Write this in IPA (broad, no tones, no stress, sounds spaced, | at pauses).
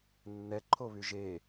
nː ɛ ǃʰ o β y ʒ e